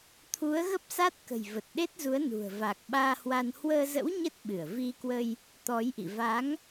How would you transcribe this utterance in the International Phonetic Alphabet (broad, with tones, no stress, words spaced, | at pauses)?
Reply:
t̪ʰu˨˦ə̯ɣə˦˥p̚sa˦˥t̚ kə̤˨˩jvə˨˩t̚ɗe˦˥t̚zu˨˦ə̯ nṳ˨˩ə̯va˨˩k̚ɓaː˧hwa˧n hwəː˧zə̰˧˥w ɲə˦˥t̚ ɓɨ˧˩ə̯vi˧kwə˧j | t̪ɔ˨˦jʔḭ˧˨ va˨˦ŋ